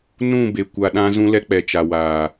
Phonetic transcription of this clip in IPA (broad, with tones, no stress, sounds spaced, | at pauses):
n ũ˦˨ b e˨ kʷ a˨ ɗ ã˦ z ũ˦ l ɛ˦ k͡p ɛ˨ t͡ʃ a˨ w aː˨